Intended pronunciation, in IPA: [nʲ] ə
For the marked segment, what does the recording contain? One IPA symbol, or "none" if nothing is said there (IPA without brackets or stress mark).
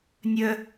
nʲ